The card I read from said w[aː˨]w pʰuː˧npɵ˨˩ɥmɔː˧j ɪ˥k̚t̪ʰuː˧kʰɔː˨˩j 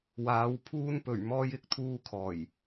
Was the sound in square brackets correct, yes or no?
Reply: no